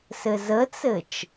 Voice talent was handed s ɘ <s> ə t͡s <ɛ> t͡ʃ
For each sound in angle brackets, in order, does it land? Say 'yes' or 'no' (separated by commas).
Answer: no, no